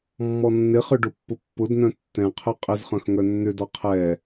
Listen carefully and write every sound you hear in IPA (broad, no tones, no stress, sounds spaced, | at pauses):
mː ɔ nː ɪ χ ʏ ɖ ʊ pː ʊ pː ʊ d n œ̃ tː ɛ̃ qʰ œ qʼ ɪ z χ œ̃ x ŋ œ nː ʏ d ɔ qʰ ɛ